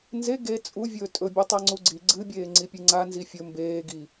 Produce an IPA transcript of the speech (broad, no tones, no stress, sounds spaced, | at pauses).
n z e ɡ e t͡sʼ u vʲ ɵː tʼ ɵ bʲ ʉ tˤ a ŋ͡ǀ u ɡ͡ǀ i ɡ͡ǀ ɨ bʲ eː ŋ͡ǀ i pʲ ɨ ŋ͡ǀ a n z i fʲ ɵ m b eː ɡ i